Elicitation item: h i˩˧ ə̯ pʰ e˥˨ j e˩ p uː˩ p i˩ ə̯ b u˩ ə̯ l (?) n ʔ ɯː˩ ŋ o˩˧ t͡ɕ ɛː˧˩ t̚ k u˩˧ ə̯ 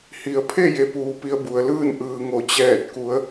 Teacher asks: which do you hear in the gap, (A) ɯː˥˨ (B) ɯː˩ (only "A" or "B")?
A